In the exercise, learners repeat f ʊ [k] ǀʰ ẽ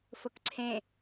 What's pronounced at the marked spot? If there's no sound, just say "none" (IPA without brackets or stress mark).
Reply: k